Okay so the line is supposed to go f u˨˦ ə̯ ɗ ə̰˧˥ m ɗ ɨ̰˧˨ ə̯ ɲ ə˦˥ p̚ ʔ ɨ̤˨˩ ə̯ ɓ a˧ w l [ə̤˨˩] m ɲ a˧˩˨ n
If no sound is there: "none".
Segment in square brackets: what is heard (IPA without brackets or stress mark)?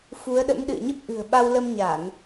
ə˧